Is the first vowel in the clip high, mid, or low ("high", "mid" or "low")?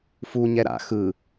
high